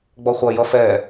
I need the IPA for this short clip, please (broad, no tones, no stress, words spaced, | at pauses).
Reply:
ɡ͡bɔχʷɐ jʌfɛ